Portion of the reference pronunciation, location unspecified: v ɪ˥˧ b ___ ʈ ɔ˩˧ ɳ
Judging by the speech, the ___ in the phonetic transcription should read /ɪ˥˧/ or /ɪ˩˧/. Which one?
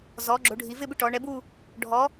ɪ˥˧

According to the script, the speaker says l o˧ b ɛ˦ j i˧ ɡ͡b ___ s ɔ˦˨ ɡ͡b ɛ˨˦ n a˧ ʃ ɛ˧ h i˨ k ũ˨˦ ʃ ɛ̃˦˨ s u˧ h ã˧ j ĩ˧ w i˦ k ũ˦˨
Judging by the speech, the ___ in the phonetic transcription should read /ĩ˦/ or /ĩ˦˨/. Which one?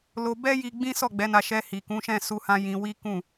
ĩ˦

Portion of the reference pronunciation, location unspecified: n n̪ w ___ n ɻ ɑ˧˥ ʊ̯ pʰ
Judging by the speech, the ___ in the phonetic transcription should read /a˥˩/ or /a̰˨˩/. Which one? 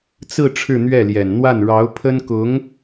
a˥˩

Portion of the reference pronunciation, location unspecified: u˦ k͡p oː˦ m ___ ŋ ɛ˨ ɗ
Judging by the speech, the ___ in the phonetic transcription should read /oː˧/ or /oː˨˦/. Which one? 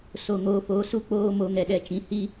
oː˧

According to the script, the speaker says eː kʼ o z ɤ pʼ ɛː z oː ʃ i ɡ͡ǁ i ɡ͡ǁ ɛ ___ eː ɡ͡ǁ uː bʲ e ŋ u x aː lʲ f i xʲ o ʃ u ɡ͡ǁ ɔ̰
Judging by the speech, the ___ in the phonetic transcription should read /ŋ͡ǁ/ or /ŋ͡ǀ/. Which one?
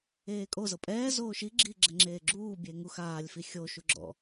ŋ͡ǁ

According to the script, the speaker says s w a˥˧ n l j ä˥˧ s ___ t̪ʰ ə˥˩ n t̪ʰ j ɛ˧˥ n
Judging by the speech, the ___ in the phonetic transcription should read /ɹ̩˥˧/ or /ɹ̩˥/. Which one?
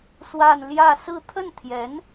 ɹ̩˥˧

